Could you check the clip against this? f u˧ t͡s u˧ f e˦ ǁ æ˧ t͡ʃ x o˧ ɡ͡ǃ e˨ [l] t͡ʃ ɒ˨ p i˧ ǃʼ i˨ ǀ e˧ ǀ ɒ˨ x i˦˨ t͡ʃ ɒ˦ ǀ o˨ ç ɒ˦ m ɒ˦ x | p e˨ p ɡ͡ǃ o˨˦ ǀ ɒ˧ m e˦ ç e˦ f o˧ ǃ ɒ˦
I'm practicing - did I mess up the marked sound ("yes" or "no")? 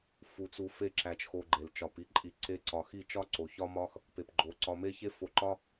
no